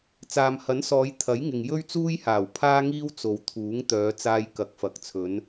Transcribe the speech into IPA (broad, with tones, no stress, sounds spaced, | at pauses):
t͡s aː˨ m h ɐ˨˥ n s ɔː˨˧ j t̪ʰ ɐ˨˥ j ŋ ɪ˨ ŋ j ɵ˥ ɥ t͡s uː˥ j h aː˨˩ w pʰ aː˥ ŋ iː˥ w t͡s o˨ w t̪ʰ uː˨˥ ŋ t̪ œː˨˧ t͡s aː˧ j k ɐ˨˥ k̚ f ɐ˨ k̚ t͡sʰ ɵ˨˧ n